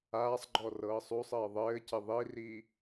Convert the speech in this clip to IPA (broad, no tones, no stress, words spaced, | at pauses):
aːsˤɡ͡ǃɔ rɤːsˤusˤɘː ðˤɘːcɪ ðˤiri